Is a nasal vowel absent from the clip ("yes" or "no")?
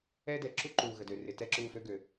yes